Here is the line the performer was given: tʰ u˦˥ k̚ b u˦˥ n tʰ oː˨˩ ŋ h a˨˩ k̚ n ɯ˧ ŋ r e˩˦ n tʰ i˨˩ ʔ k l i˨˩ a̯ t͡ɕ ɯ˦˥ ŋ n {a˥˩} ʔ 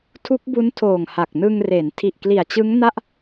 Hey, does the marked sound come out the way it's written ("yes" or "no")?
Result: yes